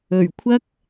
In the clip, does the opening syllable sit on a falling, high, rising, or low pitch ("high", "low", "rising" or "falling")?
low